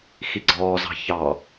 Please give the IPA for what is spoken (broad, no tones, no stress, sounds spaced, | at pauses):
x i ɡ͡ǀ ɔː z ɑ̤ ç ɑ